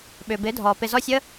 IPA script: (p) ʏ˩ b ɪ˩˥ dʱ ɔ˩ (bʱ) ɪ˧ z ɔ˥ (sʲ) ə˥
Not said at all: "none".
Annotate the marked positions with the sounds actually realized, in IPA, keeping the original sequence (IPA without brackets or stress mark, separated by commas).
ɓ, p, sʲ